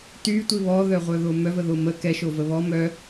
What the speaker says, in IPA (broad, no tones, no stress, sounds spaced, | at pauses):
t y tʷ i β ɔ ð œ ʁʷ œ ð o m œ v ə ð o m ə k ɛ ʃ o v ə β ɔ m œ